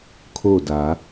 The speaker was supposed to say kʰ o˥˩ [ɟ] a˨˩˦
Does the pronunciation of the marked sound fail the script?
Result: yes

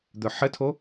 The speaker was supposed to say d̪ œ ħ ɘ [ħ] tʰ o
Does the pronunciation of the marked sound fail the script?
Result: yes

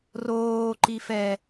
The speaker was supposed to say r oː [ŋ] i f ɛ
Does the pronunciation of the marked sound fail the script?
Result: yes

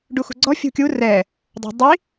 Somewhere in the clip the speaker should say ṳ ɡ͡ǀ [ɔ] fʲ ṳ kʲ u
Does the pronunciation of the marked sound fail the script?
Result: no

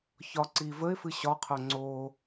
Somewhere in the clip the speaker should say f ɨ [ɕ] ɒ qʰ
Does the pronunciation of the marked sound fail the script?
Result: no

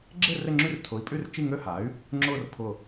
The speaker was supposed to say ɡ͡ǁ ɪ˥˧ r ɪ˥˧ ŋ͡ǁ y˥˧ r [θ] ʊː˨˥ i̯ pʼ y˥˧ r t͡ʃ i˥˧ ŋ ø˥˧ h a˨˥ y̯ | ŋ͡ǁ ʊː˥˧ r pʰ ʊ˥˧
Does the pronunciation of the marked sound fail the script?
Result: yes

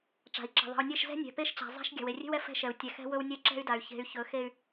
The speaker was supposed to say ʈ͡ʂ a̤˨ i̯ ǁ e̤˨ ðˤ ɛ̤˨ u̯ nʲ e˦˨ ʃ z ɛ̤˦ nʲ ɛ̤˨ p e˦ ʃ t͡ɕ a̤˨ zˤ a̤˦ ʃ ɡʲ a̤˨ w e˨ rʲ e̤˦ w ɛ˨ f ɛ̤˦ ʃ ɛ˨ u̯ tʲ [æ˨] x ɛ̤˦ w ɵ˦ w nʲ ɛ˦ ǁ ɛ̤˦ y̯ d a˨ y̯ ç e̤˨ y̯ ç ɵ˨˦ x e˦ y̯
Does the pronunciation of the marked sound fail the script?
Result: yes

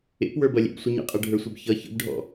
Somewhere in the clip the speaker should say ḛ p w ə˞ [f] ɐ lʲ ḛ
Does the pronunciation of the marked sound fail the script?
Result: yes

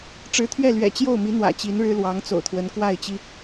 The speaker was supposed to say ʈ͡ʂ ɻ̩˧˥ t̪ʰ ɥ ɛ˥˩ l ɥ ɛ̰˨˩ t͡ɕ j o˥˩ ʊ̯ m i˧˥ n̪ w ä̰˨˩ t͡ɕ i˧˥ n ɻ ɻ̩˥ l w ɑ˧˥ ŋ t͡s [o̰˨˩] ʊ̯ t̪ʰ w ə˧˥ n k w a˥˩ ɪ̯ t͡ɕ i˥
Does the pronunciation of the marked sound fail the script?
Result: no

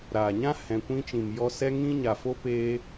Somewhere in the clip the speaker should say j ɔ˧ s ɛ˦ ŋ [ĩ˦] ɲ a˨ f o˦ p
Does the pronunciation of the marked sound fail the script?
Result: no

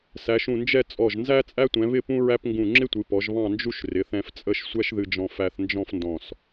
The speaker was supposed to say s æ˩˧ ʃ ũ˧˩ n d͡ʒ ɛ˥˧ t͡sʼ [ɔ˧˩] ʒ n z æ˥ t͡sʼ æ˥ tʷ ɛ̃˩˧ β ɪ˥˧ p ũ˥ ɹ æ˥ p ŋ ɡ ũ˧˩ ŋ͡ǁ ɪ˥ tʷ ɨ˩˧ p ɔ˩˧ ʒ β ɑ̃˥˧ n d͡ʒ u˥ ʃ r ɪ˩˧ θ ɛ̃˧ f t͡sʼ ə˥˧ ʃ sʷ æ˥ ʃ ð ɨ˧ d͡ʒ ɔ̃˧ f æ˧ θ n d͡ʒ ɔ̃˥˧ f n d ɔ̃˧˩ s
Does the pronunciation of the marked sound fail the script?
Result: no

